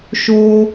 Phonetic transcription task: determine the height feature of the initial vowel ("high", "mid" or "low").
mid